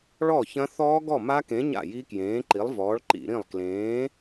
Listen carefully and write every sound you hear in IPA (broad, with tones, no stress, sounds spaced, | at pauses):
ɭ ɔ˥˩ ç ɐ̃˦˥ θ ɔː˦˥ ɡ ɔ˥˩ m a˦˥ k ẽ˨˥ ɲ a̰˥˩ j i˦˥ k j ẽː˨˥ ǃ i˨˥ lˠ v ɔː˨˥ ɭ ǃ ḭ˧˩˧ ɾ ĩ˥˩ lˠ k l ẽː˨˥